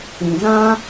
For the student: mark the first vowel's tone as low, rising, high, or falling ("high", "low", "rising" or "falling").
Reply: low